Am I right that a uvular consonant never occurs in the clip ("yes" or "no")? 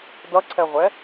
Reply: no